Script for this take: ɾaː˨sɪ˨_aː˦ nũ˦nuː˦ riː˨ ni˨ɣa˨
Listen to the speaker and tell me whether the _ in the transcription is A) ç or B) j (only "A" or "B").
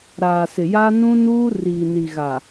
B